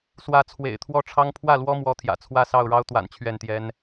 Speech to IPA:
s w ä˨˦ t͡sʰ w ḛ˨˩ ɪ̯ t̪ʰ w ɔ˥˨ ʈ͡ʂʰ ɑ˦ ŋ pʰ w ä˥˨ l w ɔ˦ m w ɔ˨˦ t̪ʰ j ä̰˨˩ t͡sʰ w ä˥˨ s ɑ˥˨ ʊ̯ ɻ ɑ˦ ʊ̯ t̪ w a̰˨˩ n t͡ɕʰ ɥ ɛ˥˨ n t̪ j ɛ˦ n

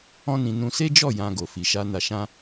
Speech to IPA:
ɔ̃˦ n ĩ˧ n ũ˧ s e˦ d͡ʒ ɔ˦˨ j ã˧ ɡ o˨ f i˨ ʃ a˧ n a˧ ʃ ã˦

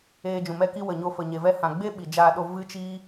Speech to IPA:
eː˧ d͡ʒ ũ˨ m ɛ˦ k i˦ w ə˨ ɲ o˧ f ə˨ ɲ e˨ v ɛ˦ h ã˧ ɡ͡b e˦ ɓ i˨ d͡ʒ aː˧ ɗ o˧ v ɨ˦ t͡ʃ iː˦

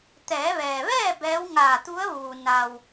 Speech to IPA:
t̪ ɛː˩˧ ʋ ɛː˩ ʋ ɛː˥˨ b ɛː˧˥ w ŋ aː˧˩ t̪ u˧˥ ə̯ ʋ uː˩ n a˩ w

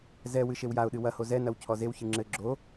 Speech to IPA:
z ɛ w ɨ ʃ e w j a ʊ̯ ɗ ɨ w ɐ h o z ɛ n ɐ w cʰ ɔ z e w ç ɨ ŋ͡ǁ ɘ ɡ͡ǁ o

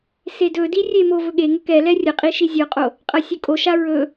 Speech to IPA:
s e d ɵ d i rʲ e m o v ɵ ɠ e ŋ ɵ k ɛ l ɛ rʲ ɐ qʼ i ʃ i zʲ ɔ qʼ o | qʼ ɐ sʲ ɵ kʼ o ʃ a ɹ ɵ

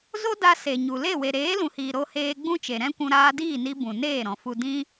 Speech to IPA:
z o˦ d a˧ s e˨ ɲ u˨ l e˦˨ w e˨ ɾ eː˨˦ l ũ˨ h iː˨ ɾ o˧ h eː˧ ɡ͡b ũ˦ t͡ʃ e˨ ɾ ɛ̃˦ kʷ ũ˧ ɾ aː˧ d iː˦˨ n i˧ b ũ˨ n eː˦˨ ɾ ɔ̃˨ f u˧ d ĩ˦

